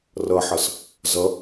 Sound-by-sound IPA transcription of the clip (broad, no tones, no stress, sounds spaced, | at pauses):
r ʌ ħ ʌ s | z ʌ